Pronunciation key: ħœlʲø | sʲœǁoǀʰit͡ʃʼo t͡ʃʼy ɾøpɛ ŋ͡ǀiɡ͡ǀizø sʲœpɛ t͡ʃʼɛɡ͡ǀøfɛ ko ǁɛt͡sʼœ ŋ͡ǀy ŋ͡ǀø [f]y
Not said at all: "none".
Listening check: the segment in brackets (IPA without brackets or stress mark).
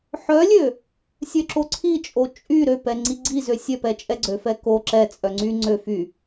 f